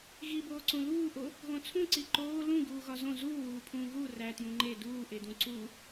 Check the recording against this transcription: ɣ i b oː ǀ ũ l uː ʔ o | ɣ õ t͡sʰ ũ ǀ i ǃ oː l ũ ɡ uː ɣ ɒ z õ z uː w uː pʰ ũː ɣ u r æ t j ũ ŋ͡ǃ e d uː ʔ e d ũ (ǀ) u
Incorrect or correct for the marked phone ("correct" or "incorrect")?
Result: correct